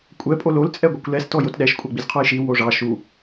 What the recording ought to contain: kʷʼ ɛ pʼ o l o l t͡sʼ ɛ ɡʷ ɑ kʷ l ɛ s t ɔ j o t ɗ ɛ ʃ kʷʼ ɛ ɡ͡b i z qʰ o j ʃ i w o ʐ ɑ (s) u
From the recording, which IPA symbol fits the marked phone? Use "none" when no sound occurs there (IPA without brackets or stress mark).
ʃ